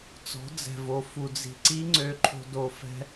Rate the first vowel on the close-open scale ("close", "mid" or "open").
mid